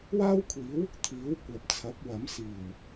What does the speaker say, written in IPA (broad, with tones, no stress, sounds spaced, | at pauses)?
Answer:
w aː˥ w kʷʰ iː˨˥ w | t̪ʰ iː˨˥ w kʷ ɐ˨ p̚ t͡sʰ ɐ˨˥ p̚ w ɐ˨˥ m s iː˨˩ w